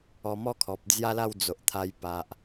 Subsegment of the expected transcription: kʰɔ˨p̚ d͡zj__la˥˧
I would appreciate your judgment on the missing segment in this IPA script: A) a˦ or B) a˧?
A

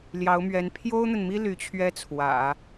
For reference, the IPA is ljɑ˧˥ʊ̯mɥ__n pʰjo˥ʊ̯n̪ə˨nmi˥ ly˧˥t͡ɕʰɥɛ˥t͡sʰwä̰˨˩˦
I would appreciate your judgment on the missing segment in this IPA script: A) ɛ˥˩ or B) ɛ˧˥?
B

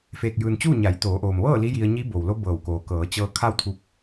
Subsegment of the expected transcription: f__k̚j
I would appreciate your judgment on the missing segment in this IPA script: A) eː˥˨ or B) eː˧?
B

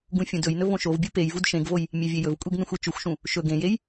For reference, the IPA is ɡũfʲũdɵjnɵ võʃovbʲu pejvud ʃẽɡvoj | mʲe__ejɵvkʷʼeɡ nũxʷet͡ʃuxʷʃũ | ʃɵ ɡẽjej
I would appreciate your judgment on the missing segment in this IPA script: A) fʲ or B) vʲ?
B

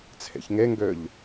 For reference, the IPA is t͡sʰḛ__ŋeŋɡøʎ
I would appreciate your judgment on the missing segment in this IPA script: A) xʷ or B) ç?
B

